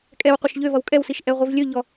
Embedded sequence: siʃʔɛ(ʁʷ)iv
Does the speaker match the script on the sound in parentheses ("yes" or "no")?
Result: yes